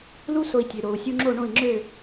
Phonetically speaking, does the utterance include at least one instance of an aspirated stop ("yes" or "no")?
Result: no